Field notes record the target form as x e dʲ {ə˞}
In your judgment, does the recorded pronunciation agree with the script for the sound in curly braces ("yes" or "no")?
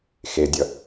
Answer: no